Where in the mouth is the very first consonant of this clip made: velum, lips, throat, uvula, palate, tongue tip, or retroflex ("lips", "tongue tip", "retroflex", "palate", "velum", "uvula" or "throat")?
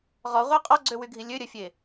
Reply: uvula